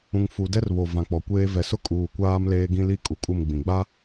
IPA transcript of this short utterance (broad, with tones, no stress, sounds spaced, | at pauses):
ũ˨ ŋ f u˨ d ɛ˦ r β o˨ v ã˨ k͡p ɔ˨ kʷ eː˦ v ɛ˨ s ʊ˦ kʼ uː˨ kʷ aː˦ m l eː˦ ɡ ĩ˦ l i˦ kʼ u˨ kʼ u˦˨ m ɡ͡b ĩ˨ ɡ͡b a˦